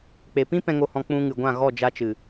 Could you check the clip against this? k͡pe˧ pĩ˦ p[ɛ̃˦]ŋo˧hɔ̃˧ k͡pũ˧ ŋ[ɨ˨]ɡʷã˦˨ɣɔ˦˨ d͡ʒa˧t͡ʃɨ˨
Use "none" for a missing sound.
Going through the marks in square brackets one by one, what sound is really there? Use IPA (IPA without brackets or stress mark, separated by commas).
ɛ̃˧, ɨ˨